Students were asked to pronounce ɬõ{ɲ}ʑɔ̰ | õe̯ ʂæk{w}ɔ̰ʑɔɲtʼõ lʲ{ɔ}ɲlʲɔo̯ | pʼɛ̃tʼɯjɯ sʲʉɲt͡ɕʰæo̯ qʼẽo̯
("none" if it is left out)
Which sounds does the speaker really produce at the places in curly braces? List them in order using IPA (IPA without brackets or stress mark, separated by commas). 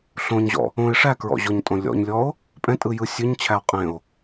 ɲ, ɹ, ɔ̰